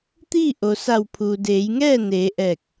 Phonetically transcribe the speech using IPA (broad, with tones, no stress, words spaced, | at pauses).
t̪iː˥˨ʔo˩ sa˧˩wpʰuː˩deː˩˧jŋɛː˥˨ neː˩˧ʔɛː˧˩k̚